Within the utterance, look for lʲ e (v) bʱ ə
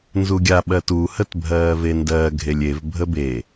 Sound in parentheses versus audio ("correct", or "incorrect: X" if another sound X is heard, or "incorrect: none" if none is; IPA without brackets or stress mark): correct